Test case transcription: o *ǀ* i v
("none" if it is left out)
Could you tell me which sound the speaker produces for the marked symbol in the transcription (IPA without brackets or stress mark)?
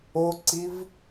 ǀ